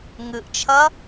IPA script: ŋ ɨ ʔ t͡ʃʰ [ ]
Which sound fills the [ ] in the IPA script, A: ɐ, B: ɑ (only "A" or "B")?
A